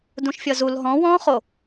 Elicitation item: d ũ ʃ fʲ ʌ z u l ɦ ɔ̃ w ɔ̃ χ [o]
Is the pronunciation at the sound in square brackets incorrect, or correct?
correct